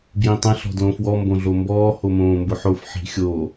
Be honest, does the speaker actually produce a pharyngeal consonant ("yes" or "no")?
yes